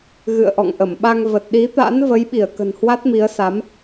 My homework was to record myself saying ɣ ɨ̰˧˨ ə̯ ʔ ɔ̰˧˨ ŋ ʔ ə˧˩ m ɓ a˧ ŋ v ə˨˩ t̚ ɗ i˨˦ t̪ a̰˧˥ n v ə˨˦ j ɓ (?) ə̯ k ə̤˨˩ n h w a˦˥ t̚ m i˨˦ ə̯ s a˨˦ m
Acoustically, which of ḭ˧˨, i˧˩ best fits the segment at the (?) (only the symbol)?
i˧˩